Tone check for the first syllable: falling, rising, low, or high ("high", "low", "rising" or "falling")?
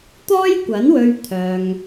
high